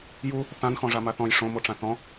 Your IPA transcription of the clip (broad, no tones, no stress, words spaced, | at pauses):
ju | θãnxɔ̃ʐama θɔ̃j ʂõmoʈ͡ʂã θɔ̃